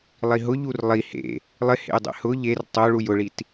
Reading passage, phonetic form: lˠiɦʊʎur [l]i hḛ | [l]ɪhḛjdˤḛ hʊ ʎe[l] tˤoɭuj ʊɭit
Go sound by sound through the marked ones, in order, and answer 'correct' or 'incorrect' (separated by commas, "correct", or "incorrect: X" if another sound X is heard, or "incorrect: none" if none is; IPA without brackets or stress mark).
incorrect: lˠ, incorrect: lˠ, incorrect: r